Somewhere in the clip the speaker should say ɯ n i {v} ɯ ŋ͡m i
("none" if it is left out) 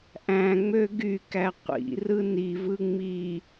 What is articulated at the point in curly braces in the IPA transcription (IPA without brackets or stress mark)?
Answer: v